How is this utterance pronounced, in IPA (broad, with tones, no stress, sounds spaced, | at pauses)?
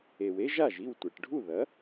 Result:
e˩ w e˥ ʒ a˥˩ ʒ i˥˩ w tʷ e˩ ʈ ɖʱ u˥˩ ð ɐ˩˥